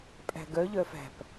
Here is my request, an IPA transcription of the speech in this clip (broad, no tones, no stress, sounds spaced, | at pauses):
pʼ æ̤ ɡ œ ʎ œ f æ̤ p